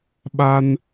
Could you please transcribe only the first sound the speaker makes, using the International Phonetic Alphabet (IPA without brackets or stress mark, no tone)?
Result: ɓ